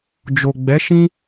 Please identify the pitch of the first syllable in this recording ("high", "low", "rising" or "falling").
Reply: low